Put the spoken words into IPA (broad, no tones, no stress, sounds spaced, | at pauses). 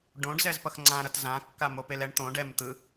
ɖ õ ɖ z ɛ z p ʌ x ŋ͡ǀ ã ɾ ʌ t z ã kː a m o p e l ɛ ɳ t̪ õ ɖ ɛ m t̪ ɯ